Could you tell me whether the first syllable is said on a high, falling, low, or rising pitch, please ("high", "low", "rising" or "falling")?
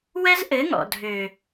high